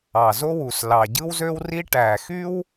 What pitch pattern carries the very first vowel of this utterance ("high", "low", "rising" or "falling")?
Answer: low